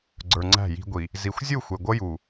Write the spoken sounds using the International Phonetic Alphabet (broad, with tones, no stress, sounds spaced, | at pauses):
ɡ͡ǀ ə˞˨ ŋ͡ǀ æ̤˦˨ j i̤˦ ɡʷ i˨ | z i˨ xʷ zʲ u˦˨ xʷ ɛ˨ ɡʷ ʌ˦ j u˨